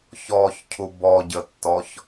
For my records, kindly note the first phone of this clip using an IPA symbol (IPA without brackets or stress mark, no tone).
ç